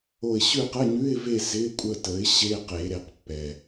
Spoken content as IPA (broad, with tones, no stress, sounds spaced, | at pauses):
o˦˨ ɪ̯ ɕ ʉ˦˨ q ə˧˥˧ ɲ ʉ˧˥˧ ɪ̯ v e˦˨ z ɪ˧˥˧ kʷʼ ə˦˨ t ə˩˥ ɪ̯ ɕ e˧˥˧ q e˨˩˦ ɾ e˩˥ q pː ɛ˩